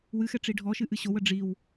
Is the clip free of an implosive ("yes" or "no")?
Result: yes